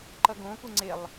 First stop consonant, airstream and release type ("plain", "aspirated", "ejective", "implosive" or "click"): click